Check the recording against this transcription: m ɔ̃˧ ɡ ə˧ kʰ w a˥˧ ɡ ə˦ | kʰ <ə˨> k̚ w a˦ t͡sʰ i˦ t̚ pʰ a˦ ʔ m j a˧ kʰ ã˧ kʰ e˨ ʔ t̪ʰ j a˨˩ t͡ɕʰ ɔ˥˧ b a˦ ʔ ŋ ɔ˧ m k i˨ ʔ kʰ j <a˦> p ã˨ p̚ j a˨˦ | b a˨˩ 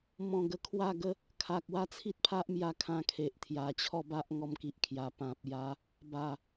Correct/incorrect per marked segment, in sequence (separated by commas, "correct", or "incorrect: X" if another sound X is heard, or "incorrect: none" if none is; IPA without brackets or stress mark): incorrect: a˨, incorrect: a˨˩